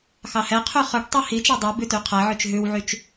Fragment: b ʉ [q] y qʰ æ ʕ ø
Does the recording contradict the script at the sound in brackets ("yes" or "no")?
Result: yes